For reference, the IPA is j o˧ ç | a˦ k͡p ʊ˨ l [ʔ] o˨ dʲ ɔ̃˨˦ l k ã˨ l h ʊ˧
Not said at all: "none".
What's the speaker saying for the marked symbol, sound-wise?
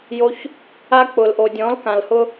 ʔ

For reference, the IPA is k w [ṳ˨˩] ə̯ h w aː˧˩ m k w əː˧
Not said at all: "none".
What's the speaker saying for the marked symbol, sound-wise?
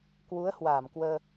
u˨˦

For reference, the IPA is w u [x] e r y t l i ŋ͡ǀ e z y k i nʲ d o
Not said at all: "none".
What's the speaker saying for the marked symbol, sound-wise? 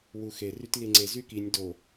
x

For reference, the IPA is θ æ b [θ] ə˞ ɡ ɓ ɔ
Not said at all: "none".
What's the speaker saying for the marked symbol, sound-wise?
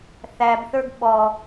θ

